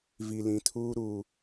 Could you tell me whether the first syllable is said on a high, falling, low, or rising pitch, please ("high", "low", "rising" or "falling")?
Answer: low